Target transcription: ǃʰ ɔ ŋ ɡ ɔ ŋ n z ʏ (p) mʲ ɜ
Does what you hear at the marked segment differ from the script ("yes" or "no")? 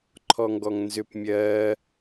no